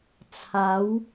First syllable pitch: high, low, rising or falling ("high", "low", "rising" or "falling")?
rising